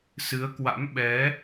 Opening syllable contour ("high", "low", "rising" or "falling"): rising